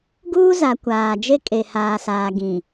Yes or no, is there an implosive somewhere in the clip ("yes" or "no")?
no